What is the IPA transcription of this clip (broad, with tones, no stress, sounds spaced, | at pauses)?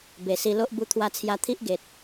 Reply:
b e˨˩ s i˧ l o˦ ʔ b u˧ t̪ʰ w a˧ t͡sʰ j a˧ t̪ʰ i˦ ʔ ɡ e˨ t̚